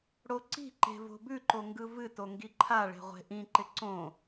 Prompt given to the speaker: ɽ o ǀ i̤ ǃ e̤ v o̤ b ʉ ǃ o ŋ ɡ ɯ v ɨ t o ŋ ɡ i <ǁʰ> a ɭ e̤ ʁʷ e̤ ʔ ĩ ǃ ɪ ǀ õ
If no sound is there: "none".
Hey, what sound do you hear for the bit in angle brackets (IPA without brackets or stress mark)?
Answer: ǃʰ